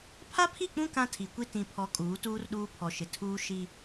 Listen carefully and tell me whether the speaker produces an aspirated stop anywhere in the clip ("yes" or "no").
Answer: yes